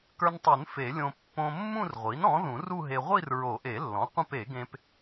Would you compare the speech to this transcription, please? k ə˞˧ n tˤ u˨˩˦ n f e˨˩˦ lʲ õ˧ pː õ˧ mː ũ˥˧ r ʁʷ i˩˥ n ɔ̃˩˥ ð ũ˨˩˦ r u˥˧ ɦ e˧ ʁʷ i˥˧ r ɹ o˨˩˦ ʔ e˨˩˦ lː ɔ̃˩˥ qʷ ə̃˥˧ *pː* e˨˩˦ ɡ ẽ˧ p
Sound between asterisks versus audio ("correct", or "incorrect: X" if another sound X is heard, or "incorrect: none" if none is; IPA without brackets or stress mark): incorrect: p